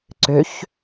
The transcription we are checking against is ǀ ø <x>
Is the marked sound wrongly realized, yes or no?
yes